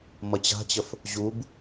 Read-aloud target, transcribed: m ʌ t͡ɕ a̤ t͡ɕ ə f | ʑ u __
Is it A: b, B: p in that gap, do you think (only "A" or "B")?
A